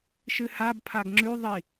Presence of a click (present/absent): present